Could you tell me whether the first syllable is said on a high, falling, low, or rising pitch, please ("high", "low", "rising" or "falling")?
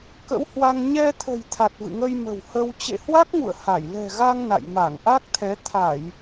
rising